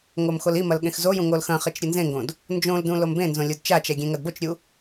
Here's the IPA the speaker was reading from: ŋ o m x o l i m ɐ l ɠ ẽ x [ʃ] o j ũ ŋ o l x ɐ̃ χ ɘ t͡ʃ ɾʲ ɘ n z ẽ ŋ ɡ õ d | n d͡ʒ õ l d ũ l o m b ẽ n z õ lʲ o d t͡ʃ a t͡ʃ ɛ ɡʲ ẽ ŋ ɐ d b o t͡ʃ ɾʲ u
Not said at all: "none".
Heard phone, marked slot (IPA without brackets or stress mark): z